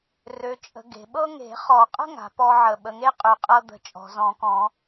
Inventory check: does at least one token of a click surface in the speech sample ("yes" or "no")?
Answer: no